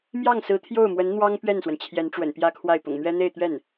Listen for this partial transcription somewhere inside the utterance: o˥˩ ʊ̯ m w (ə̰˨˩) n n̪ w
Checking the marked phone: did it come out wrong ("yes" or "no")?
yes